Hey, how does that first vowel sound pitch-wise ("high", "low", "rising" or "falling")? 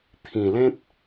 low